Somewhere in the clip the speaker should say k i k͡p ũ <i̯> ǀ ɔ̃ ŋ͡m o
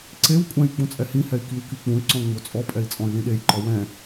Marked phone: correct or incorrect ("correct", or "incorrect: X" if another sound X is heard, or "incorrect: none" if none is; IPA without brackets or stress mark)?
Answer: incorrect: y̯